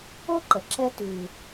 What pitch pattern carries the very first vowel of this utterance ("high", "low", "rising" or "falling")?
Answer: high